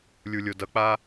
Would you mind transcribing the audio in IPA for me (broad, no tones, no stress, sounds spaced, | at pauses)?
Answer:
lʲ u lʲ o d ʌ k͡p a